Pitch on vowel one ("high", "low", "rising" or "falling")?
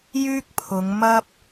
high